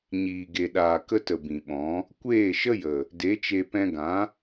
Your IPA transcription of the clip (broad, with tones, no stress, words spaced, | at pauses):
ɲiː˨ɡe˨ɗaː˨ kə˧tə˨ bĩ˨ɓɔ̃˨˦ | kʷeː˦˨ʃə˦jə˨ | de˨˦t͡ʃe˧ pɛ̃˧ɡã˨˦